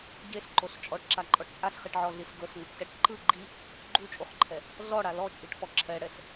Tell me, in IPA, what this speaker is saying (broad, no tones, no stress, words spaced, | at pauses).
ɟeɬǃoɬ t͡ʃʼɔʈǁaǃʼɔʈ t͡sʼaɬχiʈʕɔɮiɬ ɡɤɬŋuʈcɛʈ ǃɯ ɡ͡ǃi | ɡ͡ǃut͡ʃʼuχǃʰɛ | ɮɔɽa lɔt͡ʃʼiʈfɔ ǁʰɛɽɛɬ